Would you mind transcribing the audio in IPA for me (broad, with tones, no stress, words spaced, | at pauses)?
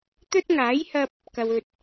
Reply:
t̪ɵ˥t̚ŋaː˨˥jhɐ˧p̚ | kɐ˨wɵ˨t̚